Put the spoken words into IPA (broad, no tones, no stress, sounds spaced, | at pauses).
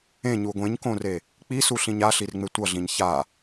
ẽ ɲ u ɡʷ ẽ ɲ k õ r e | k͡p i s u ɬ ĩ ɲ a ɬ i r ŋ͡m e tʷ ʌ ɮ ĩ ɲ ç a